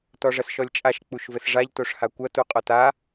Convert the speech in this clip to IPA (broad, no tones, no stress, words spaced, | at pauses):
tɔʐɐsʃɔlʲt͡ʃʼaʃ k͡puʃvɘsʐaʎ toʂhakʷɐ tuqʼɔta